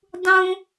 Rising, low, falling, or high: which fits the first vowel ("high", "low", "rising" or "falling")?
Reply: high